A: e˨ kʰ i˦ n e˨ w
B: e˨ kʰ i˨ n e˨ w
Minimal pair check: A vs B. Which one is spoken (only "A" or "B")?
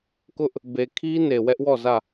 A